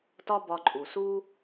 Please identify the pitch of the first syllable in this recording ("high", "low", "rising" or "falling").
high